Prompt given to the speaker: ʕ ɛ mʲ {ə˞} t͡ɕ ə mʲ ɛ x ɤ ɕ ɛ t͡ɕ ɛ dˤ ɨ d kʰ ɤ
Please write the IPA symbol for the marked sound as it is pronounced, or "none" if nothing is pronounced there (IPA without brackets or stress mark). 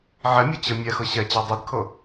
ɤ